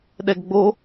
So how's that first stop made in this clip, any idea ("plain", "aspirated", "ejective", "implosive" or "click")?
implosive